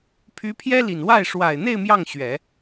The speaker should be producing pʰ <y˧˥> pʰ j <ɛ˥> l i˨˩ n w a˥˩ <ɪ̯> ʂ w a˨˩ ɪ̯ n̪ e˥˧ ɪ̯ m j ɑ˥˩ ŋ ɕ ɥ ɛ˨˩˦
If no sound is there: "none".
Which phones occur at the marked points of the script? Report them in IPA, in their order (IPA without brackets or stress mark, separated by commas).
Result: y˧˥, ɛ˥, ɪ̯